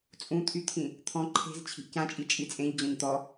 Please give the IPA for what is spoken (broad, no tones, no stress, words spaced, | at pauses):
t͡sʼũt̪ʰyt̪ʰĩ | t̪ʰɔ̃ ǃʰe̤z t͡ɕʰi̤ʔcãt͡ʃʼi t͡ʃʼit͡sʼẽʎ d͡ʑɔ̃ɲt̪ɔ